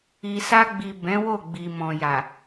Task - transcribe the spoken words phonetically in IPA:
i˨ s a˧ ɡ͡b i˨ b ɛ̃˨˦ w o˦˨ ɡ͡b i˨ m ɔ̃˨ j a˨

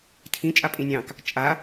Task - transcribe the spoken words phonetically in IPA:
tʰ ĩ t͡ʃʼ a pʼ ĩ nʲ ɑ̃ k | t͡ʃʼ a

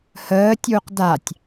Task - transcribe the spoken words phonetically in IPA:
h əː tʲ u q d a tʲ

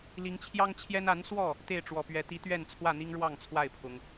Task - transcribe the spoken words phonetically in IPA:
l i˨˦ ŋ t͡ɕʰ j ɑ˦ ŋ t͡ɕʰ j ɛ˦ n a˨˦ n s w ɔ˥˨ | t̪ e˥˨ ɪ̯ ʈ͡ʂ w ɔ˨˩ p ɥ ɛ˨˦ t̪ i˨˦ t̪ ɥ ɛ˥˨ n t͡sʰ w ä˥˨ n̪ i˦ ŋ ɻ w ɑ˥˨ ŋ t͡sʰ w a˥˨ ɪ̯ pʰ ʊ˨˦ ŋ

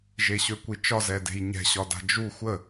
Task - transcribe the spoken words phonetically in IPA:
ʒ e ɕ ø kʷ i t͡ʃ ɒ z ɛ d e̤ j ɲ ɛ̤ ɕ ɒ d a̤ d͡ʒ u xʷ ə

